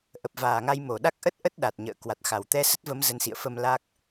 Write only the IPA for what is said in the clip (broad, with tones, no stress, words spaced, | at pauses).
ʔə˨˩p̚vaː˨˩ŋa˧j mo˧˩ɗa˦˥k̚ʔə˦˥t̚ ʔə˦˥t̚ ɗa˨˩t̚ɲə̰ː˧˨ kwa˨˩t̚xa˧˩w t̪ɛ˧sə˦˥t̚və˨˦m zə˨˦nsḭ˧˨ə̯fə˧m la˦˥k̚